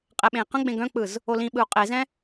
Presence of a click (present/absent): absent